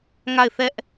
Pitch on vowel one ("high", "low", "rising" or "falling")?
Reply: falling